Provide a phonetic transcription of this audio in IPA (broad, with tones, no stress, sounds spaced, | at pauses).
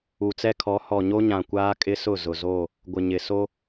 u˨ t͡s ɛ˦ kʰ ɔ˨˦ h ɔ˨ ɲ o˦ ɲ ã˨ kʷ aː˦ kʼ ɪ˦ s ʊ˦˨ z ʊ˨ z o˦˨ | ɡʷ ɪ˨ ɲ ɪ˨ s o˦